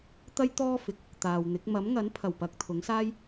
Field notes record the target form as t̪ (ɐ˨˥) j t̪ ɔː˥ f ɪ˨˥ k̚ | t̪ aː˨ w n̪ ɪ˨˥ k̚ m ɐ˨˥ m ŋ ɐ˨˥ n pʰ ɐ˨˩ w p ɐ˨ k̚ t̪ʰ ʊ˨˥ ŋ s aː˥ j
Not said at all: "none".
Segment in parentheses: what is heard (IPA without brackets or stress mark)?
ɐ˥